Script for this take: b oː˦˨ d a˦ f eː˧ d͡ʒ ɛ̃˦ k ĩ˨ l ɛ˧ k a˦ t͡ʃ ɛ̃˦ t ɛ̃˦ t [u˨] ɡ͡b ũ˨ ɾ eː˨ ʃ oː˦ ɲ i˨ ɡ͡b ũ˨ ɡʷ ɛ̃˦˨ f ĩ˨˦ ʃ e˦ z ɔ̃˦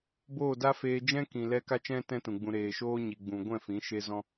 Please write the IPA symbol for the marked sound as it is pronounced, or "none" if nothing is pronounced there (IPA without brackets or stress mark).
ũ˨